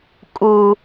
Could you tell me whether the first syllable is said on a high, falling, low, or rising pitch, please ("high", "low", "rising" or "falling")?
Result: high